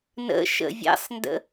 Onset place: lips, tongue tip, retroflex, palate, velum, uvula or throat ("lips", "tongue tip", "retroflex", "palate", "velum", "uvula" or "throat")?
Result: tongue tip